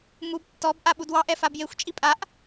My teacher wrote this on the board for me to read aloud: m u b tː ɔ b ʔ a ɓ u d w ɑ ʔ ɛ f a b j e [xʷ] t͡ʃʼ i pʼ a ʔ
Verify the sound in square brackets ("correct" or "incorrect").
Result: correct